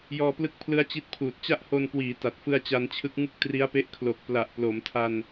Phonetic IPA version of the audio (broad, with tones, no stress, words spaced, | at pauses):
jɔː˧plɯ˦˥k̚pʰlɯ˦˥a̯ t͡ɕi˦˥t̚pʰuː˨˩t̚ t͡ɕa˥˩ʔho˧nkwiː˩˦ ta˨˩t̚fɯ˧a̯ t͡ɕa˧nt͡ɕʰɯ˦˥k̚ ŋɯ˥˩k̚tri˦˥a̯pe˦˥ʔ kʰlo˨˩k̚ pla˨˩ʔplo˩˦mtʰa˧n